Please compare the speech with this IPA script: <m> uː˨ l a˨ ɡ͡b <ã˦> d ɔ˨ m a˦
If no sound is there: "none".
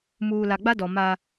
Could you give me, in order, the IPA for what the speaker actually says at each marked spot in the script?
m, a˦

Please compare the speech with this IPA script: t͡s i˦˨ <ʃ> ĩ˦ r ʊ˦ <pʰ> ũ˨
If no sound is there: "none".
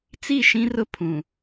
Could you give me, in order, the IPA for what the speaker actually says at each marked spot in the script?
ʃ, pʰ

